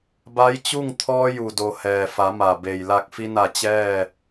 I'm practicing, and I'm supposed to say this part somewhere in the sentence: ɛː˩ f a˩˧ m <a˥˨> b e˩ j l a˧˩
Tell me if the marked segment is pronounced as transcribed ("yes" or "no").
no